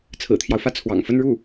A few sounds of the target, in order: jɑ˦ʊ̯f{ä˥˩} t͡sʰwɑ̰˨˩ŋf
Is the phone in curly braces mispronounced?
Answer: no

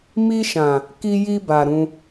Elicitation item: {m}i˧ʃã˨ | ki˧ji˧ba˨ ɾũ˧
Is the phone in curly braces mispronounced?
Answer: no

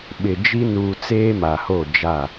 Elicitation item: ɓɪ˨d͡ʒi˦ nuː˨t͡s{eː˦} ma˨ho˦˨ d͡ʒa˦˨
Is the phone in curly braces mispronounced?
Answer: no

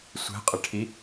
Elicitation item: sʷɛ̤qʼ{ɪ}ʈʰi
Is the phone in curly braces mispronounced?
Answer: no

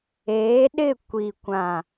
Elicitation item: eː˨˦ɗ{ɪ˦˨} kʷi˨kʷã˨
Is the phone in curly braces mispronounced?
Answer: no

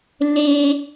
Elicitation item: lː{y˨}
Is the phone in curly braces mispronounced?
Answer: yes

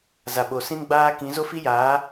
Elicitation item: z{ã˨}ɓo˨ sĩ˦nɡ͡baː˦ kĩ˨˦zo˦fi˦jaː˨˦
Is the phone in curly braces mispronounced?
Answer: yes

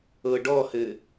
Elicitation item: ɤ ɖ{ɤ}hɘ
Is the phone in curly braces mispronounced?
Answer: yes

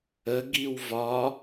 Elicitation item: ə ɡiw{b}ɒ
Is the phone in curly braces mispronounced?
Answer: yes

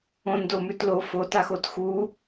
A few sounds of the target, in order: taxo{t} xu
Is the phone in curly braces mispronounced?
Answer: no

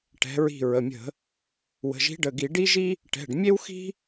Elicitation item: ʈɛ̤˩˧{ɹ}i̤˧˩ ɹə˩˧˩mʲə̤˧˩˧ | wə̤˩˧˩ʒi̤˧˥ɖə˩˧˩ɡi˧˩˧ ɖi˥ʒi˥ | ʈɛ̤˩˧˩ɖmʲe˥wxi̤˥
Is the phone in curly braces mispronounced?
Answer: no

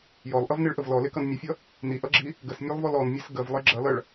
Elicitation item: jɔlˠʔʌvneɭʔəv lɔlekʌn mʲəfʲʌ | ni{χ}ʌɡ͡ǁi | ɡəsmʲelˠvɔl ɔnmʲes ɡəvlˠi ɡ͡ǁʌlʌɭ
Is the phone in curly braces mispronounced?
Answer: yes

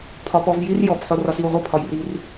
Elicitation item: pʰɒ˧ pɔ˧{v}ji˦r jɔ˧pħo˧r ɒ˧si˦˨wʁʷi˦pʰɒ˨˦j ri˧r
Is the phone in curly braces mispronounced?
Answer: no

